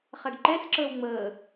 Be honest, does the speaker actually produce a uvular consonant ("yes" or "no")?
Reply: yes